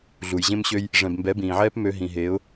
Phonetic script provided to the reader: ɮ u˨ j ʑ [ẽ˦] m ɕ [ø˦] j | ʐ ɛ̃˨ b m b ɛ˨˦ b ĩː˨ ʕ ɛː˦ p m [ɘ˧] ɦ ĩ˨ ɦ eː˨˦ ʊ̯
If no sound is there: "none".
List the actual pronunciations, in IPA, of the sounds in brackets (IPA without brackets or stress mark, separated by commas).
ẽ˦, ø˦, ø˧